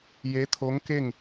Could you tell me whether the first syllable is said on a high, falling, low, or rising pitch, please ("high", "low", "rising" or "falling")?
rising